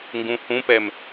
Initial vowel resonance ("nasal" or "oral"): nasal